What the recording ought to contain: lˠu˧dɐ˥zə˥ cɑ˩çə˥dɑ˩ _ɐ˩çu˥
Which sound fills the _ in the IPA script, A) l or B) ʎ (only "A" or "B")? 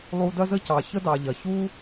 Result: B